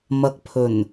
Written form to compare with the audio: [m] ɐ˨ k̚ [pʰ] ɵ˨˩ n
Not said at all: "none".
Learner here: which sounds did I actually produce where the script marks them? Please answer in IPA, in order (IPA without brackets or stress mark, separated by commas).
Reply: m, pʰ